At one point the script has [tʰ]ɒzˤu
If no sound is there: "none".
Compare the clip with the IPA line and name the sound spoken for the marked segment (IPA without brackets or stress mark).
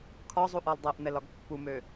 kʰ